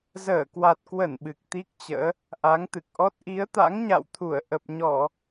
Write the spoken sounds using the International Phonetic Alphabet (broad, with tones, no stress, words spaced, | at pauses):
zəː˧˩kwa˨˩t̚kwə˧˩n ɓɨ˨˩k̚t̪i˦˥k̚t͡ɕə̰ː˧˥ | ʔa˨˦ŋt̪ɨ˨˩k̚ʔɔ˦˥t̚ ʔi˨˦ə̯t̪a̰˧˥ŋɲa̰˧˨wt̪ʰu˧˩ə̯ ʔə˨˩p̚ɲɔ˧˩˨